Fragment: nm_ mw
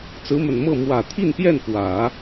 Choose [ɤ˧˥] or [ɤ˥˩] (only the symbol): ɤ˥˩